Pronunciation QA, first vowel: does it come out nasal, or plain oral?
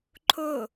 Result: oral